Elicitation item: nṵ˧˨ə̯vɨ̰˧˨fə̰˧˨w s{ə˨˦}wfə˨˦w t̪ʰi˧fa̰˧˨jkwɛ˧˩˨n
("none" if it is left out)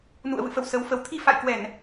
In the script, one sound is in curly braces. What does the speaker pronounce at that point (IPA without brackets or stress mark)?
ə˨˦